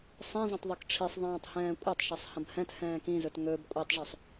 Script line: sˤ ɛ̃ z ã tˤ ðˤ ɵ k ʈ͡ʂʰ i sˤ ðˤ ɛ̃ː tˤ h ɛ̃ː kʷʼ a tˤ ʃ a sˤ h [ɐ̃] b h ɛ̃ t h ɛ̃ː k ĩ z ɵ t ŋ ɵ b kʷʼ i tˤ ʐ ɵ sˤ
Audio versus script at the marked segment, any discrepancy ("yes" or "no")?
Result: no